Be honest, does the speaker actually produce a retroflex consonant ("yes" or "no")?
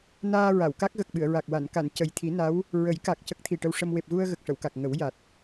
yes